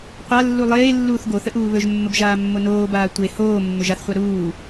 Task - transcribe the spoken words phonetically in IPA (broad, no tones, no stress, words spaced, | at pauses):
qʷalːu lˠeː lːuːθɡoθə ʔuːβɵʒmːəb ʒaːmːonoːbaː tʷe hoː mːɵʒaθχʷa ɾuː